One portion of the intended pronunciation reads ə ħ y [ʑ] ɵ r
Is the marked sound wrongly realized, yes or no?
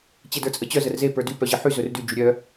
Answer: yes